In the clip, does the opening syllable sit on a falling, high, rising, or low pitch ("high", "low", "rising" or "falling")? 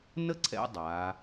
high